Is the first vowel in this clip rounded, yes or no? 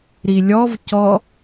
no